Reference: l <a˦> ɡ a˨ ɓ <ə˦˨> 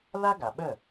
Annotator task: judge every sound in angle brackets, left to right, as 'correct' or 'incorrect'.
correct, correct

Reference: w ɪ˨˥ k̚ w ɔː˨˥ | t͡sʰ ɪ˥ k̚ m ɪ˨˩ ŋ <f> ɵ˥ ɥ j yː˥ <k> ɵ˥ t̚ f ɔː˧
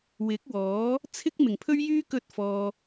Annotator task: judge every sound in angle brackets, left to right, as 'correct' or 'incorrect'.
incorrect, correct

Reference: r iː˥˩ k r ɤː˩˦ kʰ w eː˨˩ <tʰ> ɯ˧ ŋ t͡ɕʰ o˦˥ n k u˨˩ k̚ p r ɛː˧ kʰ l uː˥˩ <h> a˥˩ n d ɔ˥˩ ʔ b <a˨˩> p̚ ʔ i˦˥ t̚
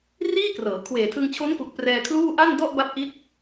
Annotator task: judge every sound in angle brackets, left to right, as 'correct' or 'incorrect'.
correct, incorrect, incorrect

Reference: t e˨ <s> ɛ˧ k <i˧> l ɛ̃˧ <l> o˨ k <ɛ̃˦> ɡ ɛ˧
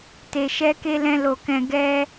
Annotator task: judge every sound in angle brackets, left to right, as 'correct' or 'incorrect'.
incorrect, incorrect, correct, incorrect

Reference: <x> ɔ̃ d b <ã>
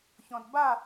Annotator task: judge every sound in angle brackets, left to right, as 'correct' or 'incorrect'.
incorrect, incorrect

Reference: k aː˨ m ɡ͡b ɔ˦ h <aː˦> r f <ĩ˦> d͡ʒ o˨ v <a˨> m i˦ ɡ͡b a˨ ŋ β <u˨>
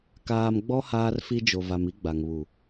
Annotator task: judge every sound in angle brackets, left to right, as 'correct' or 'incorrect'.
correct, incorrect, correct, correct

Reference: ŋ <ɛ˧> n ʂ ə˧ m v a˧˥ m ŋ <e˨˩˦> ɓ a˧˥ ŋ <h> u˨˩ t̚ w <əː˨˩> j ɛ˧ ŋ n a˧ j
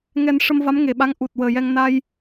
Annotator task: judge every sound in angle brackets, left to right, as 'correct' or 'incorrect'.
correct, incorrect, incorrect, correct

